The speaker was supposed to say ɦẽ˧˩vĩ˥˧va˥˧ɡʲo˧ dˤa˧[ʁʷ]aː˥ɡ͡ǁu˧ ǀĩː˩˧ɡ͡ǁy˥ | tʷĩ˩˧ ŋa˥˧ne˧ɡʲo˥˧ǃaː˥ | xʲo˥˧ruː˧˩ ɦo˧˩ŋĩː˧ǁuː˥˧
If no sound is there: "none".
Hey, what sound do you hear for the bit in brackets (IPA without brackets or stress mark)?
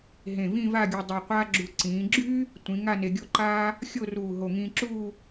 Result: qʷ